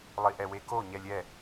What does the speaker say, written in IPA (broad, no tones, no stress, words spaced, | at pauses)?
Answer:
lˠiʔɛweko ɲɛlʲɛ